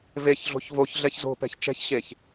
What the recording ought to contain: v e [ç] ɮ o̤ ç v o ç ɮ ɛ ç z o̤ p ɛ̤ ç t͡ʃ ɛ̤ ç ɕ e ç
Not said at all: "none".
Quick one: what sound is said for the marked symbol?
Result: ç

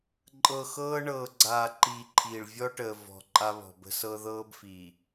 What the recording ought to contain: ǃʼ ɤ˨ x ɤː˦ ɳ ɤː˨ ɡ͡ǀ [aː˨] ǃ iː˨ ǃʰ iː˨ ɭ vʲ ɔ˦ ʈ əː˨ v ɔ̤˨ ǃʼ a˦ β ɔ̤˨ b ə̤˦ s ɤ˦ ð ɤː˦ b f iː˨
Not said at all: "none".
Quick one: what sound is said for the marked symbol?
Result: aː˨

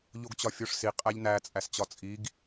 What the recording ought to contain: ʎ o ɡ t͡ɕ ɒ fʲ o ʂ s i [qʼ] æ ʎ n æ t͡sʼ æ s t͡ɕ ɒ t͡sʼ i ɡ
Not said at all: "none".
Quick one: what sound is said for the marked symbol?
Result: qʼ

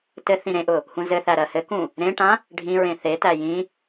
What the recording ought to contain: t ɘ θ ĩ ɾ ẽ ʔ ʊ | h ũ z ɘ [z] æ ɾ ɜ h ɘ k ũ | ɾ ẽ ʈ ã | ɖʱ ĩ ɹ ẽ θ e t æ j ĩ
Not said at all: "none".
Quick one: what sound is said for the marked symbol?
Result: θ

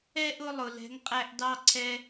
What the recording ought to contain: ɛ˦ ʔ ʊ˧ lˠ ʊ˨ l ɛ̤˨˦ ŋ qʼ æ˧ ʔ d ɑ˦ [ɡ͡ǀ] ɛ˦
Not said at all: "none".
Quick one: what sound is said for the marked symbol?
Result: ǀʰ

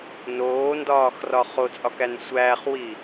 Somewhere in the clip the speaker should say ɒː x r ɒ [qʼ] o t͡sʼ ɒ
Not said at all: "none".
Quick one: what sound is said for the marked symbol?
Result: χ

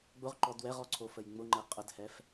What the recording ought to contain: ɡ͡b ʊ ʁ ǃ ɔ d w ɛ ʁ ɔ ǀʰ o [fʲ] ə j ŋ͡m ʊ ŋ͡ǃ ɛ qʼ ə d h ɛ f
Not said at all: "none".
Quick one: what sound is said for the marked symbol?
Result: f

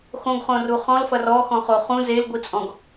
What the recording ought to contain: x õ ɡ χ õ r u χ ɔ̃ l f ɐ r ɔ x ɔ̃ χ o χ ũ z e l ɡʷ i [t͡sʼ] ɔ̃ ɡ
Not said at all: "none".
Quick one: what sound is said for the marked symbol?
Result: t͡sʼ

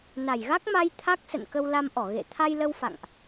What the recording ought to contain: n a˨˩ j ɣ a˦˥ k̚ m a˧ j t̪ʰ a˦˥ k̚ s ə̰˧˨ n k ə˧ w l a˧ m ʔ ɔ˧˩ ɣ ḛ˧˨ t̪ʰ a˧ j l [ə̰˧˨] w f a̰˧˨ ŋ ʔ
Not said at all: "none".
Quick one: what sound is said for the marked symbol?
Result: ə˧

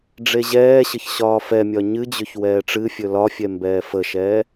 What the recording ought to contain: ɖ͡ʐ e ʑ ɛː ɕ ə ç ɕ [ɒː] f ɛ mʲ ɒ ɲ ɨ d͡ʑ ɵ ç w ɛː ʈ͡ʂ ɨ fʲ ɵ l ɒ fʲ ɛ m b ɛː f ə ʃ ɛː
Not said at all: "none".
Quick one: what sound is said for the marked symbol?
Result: ɒː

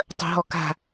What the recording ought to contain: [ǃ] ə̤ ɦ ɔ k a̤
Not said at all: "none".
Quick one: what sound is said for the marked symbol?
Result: tˤ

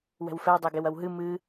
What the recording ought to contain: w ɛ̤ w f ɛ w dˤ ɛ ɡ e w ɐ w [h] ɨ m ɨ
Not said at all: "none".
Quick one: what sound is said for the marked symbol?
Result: ɦ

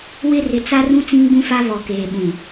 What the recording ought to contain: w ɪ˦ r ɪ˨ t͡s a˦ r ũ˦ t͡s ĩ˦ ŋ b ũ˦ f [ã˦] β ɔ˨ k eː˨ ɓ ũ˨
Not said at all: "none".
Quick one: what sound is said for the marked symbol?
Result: a˦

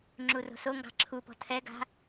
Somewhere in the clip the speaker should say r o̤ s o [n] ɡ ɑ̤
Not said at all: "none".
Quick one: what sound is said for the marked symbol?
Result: ŋ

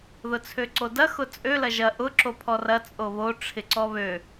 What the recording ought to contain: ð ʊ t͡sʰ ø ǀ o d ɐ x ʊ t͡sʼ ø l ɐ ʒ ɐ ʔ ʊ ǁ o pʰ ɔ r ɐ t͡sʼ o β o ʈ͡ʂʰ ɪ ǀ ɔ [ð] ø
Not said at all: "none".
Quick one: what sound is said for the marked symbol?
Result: β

